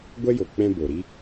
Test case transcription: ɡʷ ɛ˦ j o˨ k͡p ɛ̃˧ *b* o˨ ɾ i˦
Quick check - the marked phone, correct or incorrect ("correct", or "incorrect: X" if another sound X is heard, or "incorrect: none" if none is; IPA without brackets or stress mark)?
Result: correct